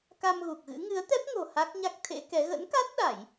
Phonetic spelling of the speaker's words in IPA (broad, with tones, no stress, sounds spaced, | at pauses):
k a˧ m ɣ u˨˩ k̚ ɣ ɨ̰˧˥ ŋ ɨ˨˦ ə̯ t̪ ɛ˦˥ p̚ ŋ o̤˨˩ h a˦˥ k̚ ɲ a˦˥ k̚ t̪ʰ ḛ˧˥ k ɛ˨˦ ɣ ə̰˧˥ n k a˦˥ t̚ ɗ a˧˩˨ j